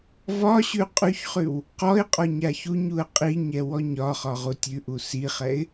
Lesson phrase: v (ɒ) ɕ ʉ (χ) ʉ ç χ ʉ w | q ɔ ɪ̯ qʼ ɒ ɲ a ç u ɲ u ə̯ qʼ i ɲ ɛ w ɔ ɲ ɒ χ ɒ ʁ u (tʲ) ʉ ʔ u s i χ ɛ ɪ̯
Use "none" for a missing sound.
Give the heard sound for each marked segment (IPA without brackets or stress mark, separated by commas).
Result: ɒ, qʼ, tʲ